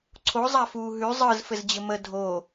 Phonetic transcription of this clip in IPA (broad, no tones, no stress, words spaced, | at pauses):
ǀʰo zˤafuːɦʉ zˤɯz fɘzd͡ʑɘmə dʱo